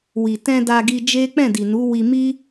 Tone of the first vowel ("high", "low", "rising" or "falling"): low